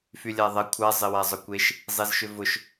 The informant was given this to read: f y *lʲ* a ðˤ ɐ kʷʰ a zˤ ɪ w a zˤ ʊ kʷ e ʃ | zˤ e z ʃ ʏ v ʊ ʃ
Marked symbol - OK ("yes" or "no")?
yes